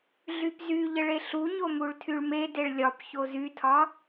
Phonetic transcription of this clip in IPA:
ɮypzyʎəɭ eɬuɲo muɭtʰyɭmedeɭ lʲɒp çozytʰɒ

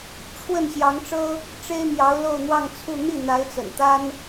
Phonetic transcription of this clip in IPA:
ʈ͡ʂʰwə˥˩n ɕjɑ˧˥ŋʈ͡ʂɤ˥ | ʈ͡ʂe˥ɪ̯mjɑ˧˥ʊ̯ lo˥˧ʊ̯n̪wɑ˥˧ŋt͡sʰu˥˧ n̪i˥˩n̪a˧˥ɪ̯t͡sə̰˨˩nt̪a˥n

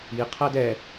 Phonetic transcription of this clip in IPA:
i qʰædɛ

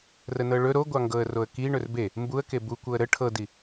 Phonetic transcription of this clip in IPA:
rənɤɭɵ ɾoɡʷɑŋɡɤə̯roə̯ ki ɳɵrbe | mbuə̯ke bukʷɤə̯ ɾə ʈʰɤdi

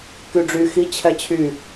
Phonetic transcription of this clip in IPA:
kyɖ͡ʐy xi t͡ɕʰɛt͡ɕʰy

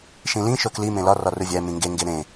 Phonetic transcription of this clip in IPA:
ʃĩlĩ ʃokli mẽlɒ rɒruvʲæ mĩŋɡe ŋɡeɾẽ

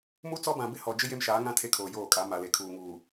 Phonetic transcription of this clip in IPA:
mu˦t͡sɔ˦bã˨ bɪ˦hɔ˨d͡ʒɪ˦ je˦mʃaː˨˦ŋã˦ tʰe˦kʰoː˨joː˦˨kʼa˨˦ ma˨le˨kʰuː˨ŋuː˨

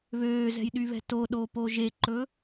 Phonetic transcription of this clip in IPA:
βøːzɛ̤jɗyβɛ̤ toɗopo ʒeǃɵ

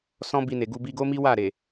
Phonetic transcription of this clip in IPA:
sɔ̃˦bi˧ne˨ɡu˧ bi˧ɡo˦mi˦ wa˦˨ ɾe˨

